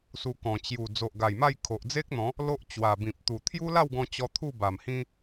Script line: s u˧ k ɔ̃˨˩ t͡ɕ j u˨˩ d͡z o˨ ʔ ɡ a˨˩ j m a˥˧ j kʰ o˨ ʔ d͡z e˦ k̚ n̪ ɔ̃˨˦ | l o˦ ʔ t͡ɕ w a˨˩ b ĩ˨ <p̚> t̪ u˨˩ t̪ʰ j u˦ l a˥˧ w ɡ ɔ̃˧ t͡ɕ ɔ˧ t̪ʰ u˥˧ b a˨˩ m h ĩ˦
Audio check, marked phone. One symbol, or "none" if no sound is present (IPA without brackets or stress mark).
p̚